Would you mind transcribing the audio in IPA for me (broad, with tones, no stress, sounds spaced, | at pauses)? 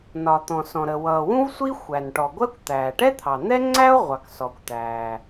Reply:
n ɒ˩ t̪ ɔ̃˩ s ɔ̃˩ ɾ ə˩ w ʌː˩ w ũ˥ v sʷ i˥ xʷ æ˩ n ʈ ɔ˩ ɡʷ ɜ˥ kʷ t̪ æː˩ ʈ ɛ˥ t̪ʰ ɑ˩ n̪ ɛ˥ ŋ͡ǀ æ˥ o̯ ʁʷ ɑ˩ k s ɔ˩ kʷ t̪ æː˩